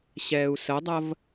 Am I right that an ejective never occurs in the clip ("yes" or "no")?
yes